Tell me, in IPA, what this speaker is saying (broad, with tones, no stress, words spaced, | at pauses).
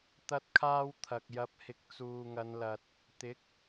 t̪ɐ˥t̚kʰaː˥wt̪ʰɐ˨k̚ jɐ˨˥p̚hɪ˨k̚ t͡suː˨ŋɐ˨˧nlɐ˨t̚ | t̪ɪ˨˥k̚